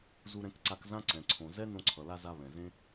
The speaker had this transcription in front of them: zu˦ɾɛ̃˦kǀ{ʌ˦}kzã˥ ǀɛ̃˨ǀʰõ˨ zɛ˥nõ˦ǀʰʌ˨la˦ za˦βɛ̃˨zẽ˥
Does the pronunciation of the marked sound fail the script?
yes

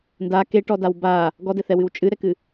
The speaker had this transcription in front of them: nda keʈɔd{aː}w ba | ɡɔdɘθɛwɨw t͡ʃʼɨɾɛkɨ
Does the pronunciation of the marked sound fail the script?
yes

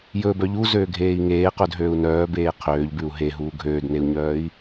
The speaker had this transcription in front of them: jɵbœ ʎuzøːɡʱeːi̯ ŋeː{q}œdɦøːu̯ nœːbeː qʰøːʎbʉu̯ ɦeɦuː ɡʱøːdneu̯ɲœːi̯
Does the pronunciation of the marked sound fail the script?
no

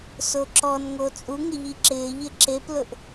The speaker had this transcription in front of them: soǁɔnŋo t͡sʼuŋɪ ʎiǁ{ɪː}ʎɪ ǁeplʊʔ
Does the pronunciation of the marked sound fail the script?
no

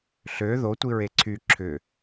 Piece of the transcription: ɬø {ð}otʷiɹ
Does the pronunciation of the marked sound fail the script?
no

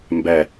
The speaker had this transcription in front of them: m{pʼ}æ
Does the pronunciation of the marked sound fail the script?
yes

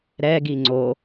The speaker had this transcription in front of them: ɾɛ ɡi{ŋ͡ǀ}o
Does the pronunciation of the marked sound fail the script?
no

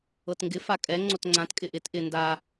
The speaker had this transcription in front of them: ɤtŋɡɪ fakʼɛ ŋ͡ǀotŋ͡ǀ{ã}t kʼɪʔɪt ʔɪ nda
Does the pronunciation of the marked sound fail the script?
no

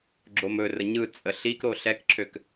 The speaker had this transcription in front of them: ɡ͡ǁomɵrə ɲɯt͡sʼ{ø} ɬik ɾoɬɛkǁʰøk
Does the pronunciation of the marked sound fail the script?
yes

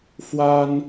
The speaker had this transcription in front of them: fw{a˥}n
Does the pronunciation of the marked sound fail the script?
no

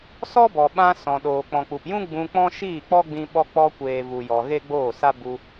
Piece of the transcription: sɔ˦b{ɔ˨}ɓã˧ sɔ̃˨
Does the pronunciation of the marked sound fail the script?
no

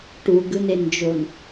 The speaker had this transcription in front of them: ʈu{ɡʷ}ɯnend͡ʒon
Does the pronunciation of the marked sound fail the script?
yes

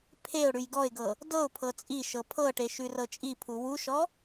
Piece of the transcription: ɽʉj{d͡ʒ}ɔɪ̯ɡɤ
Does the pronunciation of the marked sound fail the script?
yes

